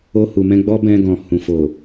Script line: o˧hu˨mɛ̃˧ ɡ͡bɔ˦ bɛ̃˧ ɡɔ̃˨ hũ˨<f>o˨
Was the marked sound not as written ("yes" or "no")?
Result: no